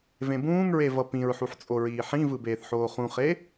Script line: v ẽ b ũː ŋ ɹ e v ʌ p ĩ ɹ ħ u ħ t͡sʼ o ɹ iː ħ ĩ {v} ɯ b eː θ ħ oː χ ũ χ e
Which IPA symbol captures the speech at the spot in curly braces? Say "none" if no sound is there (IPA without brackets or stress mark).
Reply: v